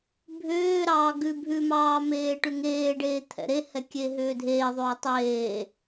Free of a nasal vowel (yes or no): yes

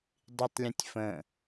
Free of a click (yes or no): yes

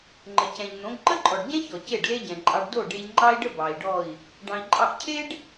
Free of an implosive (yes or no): yes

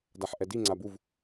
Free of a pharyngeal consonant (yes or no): no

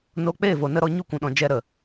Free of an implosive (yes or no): no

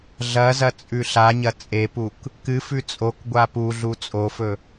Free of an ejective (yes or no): no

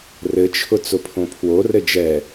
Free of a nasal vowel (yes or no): no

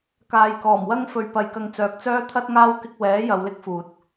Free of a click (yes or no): yes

